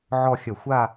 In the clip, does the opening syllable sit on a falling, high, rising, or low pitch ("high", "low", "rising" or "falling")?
falling